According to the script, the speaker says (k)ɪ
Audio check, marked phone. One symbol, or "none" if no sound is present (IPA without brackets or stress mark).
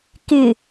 k